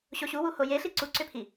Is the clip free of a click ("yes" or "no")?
no